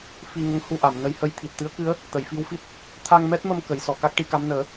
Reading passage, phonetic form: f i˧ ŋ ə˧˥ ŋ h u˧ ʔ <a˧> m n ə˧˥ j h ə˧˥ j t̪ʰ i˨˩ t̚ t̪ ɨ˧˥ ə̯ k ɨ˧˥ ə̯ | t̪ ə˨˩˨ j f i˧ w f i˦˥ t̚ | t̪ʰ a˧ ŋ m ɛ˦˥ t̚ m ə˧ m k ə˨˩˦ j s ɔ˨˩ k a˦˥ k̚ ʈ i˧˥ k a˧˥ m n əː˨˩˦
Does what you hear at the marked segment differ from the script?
yes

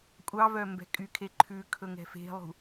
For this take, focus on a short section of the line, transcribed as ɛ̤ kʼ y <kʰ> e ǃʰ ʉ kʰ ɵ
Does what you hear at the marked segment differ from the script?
no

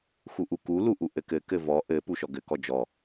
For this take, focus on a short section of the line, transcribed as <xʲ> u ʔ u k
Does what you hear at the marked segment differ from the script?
yes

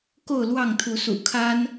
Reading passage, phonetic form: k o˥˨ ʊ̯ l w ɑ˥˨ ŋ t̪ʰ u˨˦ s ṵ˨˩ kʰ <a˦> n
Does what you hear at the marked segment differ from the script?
no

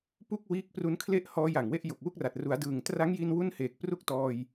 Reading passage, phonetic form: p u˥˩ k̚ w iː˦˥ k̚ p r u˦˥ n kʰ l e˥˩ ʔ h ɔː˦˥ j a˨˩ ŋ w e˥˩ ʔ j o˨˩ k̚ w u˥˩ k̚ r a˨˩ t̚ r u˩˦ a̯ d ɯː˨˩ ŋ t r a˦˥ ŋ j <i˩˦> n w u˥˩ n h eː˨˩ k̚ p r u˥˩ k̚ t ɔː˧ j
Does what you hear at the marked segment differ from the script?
yes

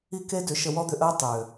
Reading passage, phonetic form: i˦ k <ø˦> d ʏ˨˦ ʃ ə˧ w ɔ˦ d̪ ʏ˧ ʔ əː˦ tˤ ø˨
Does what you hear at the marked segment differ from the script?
yes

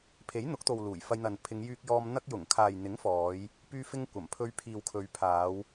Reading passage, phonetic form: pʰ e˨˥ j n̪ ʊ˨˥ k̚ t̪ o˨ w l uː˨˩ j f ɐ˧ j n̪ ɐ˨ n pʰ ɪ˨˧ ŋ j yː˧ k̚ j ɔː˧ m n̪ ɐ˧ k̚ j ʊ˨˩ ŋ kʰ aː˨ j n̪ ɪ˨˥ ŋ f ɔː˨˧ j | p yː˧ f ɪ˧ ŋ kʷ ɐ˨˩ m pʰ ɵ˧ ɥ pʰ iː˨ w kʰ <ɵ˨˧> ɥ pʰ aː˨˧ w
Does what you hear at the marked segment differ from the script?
no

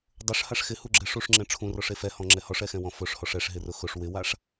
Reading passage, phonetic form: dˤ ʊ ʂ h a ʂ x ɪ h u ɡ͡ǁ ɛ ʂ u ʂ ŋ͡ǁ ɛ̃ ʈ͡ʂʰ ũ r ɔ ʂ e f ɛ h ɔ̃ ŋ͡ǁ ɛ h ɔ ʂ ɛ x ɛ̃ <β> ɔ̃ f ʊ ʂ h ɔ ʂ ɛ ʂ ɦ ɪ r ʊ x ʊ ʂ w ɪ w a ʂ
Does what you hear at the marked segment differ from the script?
yes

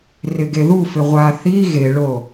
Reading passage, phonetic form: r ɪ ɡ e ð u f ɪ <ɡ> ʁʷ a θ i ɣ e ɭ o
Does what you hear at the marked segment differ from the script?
yes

